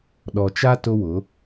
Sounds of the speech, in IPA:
ɗ ɔ˨ t͡ʃ a˦ t ʊ˦ w ʊ˨˦

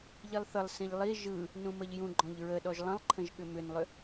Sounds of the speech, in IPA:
ʎ i lˠ θ ə lˠ s ĩ ʎ lˠ i ʒ ɯ | n ũ m ə ʎ j ũ ɡ͡ǃ ɔ̃ ʎ ɹ ə ɗ ɔ ʒ lˠ ə̃ lˠ ǃʰ ə̃ ʒ ɠ ʏ m ʏ n lˠ ʏ

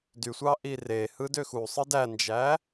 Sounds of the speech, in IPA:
d y sʷ ɑ ʔ i r e h ɯ d ø x u sˤ ɯ d æ n d͡ʒ æ

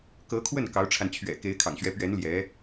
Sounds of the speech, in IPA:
k ɤ˧˥ kʰ w ə˥˩ n k ɑ˧˥ ʊ̯ ʈ͡ʂʰ a˧ n t͡ɕʰ ɥ ɛ̰˨˩ k e˧˥ ɪ̯ kʰ ɑ̰˨˩ ŋ ɕ ɥ ɛ˧˥ p ɥ ɛ˧˥ n l j ɛ˧˥

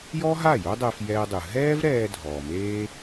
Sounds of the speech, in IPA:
j ɔ˥ ɦ a˥˩ j o˥ dˤ ɛ˧ f j ɛː˧ dˤ ɯ˩ ɦ ɛː˥ v ɾ ɛː˧ dʱ ɔː˩ m eː˥

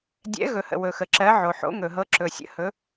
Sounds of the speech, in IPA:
dʲ ɛ̰˧˥ ɣ ɵ˨ h ə̰˨ w ɵ˨ x ə˨ ǁ ɜ˧˥ ʕ o˨ ħ o̰˧˥ ŋ ɵ˨ ɦ ɤ˧˥ ǁ ɵ˨ sʲ ə̰˧˥ h ɵ˧˥

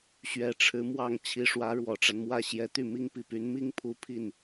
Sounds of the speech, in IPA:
ɕ ɥ ɛ˧˥ ʈ͡ʂʰ ɻ̩˧˥ m w ɑ˥˩ ŋ t͡ɕʰ i˧˥ ʂ w ä˧˥ ɻ w ɔ˨˩ ʈ͡ʂ a˦ n m w ä˥˩ ɕ j ɛ˧˥ t̪ y˥˩ m i˥ ŋ p i˥˩ p y˧˥ n m i˥ ŋ pʰ u˧˥ pʰ i˥˩ n

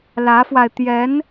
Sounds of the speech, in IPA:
l ä˧˥ f w a˧ ɪ̯ t̪ j ɛ˧˥ n

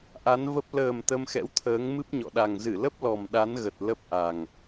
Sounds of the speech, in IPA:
ʔ a˨˦ n v ə˦˥ p̚ l əː˨˩ m t̪ ə˧ m x ɛ̰˧˥ w t̪ʰ əː˨˦ ŋ m ɨ˦˥ p̚ ɲ ɔ̰˧˨ ɗ a˨˩ ŋ z ɨ˧˩ l ə˦˥ p̚ l ɔ˨˩ m ɗ a˨˦ n ɣ ə˨˩ t̚ l ə˦˥ p̚ ʔ a˨˩ ŋ

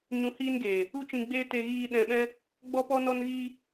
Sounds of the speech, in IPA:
ɲ ũ˧ h iː˦ n ɡ eː˨ | u˦ t͡ʃ ĩ˧ ɡ͡b eː˦ t e˧ ɣ iː˧ ɗ ɛ̃˧ ɓ ɛ̃˦ | ɡ͡b ɔ˦ p ɔ˦ n ɔ˦ n ɣ iː˦

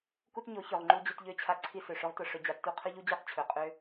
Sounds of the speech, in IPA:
k u˦ t ɲ o˨˦ ç ɵ˨ ʁ ŋ͡ǃ u˧ d͡ʑ ø˧ t ʎ ø˦ t͡ɕʰ a˧ ǀʰ i˧ s ø˨ ʂ ʊ˦ ʁ t ʊ˧ ʂ ɵ˨˦ d͡ʑ a˨ tː u˧ qʰ ɵ˦ ʎ u˦ d͡ʑ o˦ q t͡ɕʰ ɵ˨ qʼ ø˦

